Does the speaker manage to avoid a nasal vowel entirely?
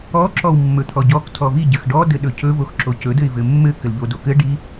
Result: yes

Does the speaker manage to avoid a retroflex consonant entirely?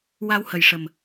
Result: no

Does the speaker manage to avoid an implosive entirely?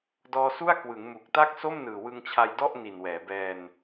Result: yes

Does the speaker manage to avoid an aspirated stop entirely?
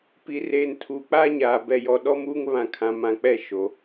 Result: no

